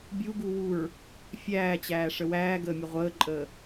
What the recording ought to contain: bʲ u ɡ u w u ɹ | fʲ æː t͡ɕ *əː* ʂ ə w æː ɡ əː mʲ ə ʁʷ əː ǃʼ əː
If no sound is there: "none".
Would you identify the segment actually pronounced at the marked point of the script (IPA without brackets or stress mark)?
æː